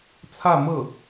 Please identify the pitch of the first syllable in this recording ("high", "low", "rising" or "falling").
falling